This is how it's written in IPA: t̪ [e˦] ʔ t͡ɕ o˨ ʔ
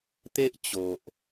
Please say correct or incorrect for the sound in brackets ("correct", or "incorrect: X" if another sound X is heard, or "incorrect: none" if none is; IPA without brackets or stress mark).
correct